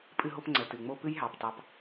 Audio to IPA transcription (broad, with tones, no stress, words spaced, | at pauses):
pʼɨ˦ɦo˦p ŋ͡ǀə˨ tɨ˨ŋ͡mo˦ pɨ˦jɦɑ˨p tɑ˦p